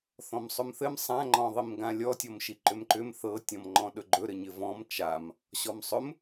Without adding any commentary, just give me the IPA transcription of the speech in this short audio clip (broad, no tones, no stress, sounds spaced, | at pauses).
θ ɔ̃ m sˤ ɵ m θ ɘ m sˤ ã ŋ͡ǃ ɔ̃ ðˤ i m ɡ ã lʲ ɔ tʲ ɔ m ʃ i ǃ ʏ m ǃ ʏ m θ ɤ tʲ ɔ̃ m ŋ͡ǃ ɔ̃ ɗ ɵ ɡ͡ǃ ɵ ɾ ɘ ɲ ɘ v ɔ̃ m t͡ʃ a m | ɕ ɔ m sˤ ɵ m